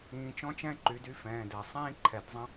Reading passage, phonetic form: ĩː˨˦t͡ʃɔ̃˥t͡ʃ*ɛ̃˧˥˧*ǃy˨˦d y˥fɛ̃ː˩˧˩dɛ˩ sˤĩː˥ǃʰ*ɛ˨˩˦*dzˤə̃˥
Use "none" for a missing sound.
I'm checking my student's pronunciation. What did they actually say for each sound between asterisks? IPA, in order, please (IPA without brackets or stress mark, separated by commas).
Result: ɛ̃˥, ɛ˨˩˦